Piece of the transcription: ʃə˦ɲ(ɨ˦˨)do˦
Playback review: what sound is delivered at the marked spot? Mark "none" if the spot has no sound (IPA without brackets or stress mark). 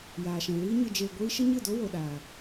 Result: ɨ˦˨